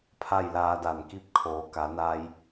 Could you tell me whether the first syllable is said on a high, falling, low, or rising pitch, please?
falling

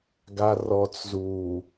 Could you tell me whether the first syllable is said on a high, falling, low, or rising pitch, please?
low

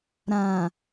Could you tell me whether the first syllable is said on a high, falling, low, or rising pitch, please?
low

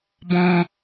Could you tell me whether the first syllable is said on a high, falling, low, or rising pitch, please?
high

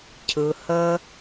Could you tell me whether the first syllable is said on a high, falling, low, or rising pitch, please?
low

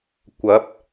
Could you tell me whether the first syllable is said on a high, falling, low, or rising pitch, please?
rising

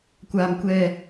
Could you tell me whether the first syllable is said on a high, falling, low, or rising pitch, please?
low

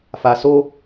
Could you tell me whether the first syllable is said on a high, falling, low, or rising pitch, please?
low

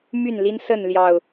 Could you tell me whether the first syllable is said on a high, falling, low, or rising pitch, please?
falling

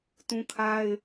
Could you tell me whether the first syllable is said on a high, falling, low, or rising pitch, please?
high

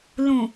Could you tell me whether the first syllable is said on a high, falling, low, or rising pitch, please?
low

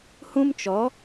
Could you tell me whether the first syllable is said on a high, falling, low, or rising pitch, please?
high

